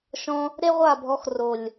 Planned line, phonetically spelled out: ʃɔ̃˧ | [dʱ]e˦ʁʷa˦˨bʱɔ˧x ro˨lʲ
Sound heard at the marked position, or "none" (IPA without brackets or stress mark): ɾ